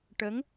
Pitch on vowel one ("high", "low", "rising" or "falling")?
rising